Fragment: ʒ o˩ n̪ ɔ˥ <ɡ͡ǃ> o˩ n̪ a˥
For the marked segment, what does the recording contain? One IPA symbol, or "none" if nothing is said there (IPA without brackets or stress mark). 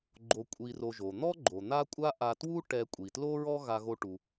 ɡ͡ǃ